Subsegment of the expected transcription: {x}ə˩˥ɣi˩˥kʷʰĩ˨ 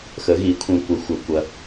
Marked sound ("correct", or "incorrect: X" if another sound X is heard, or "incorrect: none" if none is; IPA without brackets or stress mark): correct